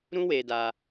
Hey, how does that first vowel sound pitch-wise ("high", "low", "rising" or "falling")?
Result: high